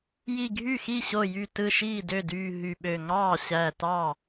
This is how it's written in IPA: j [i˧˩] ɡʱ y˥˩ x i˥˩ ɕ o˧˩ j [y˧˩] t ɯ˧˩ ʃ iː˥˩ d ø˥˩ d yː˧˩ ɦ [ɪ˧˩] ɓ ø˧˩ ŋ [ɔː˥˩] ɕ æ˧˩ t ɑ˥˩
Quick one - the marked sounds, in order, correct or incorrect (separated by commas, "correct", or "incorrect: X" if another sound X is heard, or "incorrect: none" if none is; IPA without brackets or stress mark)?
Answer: correct, correct, incorrect: y˧˩, incorrect: ɑː˥˩